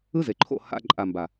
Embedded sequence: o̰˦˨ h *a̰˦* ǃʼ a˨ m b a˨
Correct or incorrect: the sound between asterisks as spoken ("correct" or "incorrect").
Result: correct